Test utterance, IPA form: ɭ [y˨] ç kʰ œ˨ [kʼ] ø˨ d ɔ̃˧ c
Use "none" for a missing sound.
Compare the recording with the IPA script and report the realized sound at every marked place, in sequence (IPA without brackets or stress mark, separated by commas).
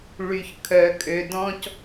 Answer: y˨, kʼ